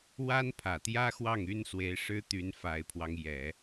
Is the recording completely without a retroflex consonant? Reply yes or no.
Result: no